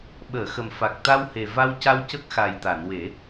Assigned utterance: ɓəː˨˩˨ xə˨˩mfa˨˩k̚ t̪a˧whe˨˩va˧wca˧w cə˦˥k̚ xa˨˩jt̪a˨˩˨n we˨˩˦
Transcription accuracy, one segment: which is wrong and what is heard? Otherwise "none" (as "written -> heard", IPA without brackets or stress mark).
none